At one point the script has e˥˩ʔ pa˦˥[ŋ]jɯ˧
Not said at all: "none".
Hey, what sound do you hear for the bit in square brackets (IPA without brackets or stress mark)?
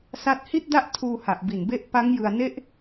ŋ